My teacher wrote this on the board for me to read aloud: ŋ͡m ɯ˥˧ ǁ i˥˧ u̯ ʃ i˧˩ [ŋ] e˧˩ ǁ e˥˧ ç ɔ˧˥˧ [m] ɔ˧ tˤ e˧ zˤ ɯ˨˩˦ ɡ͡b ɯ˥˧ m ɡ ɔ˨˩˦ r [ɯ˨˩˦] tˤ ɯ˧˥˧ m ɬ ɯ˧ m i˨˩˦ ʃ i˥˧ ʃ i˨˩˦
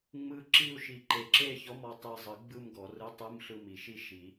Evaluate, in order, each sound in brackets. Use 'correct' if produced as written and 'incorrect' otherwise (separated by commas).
incorrect, correct, incorrect